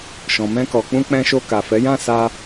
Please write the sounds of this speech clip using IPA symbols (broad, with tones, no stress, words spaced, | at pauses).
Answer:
ʃɔ̃˨mɛ̃˧kɔ˨k͡pũ˧ k͡pɛ̃˧ʃo˧ka˨ fɛ˨˦jã˦˨ sa˧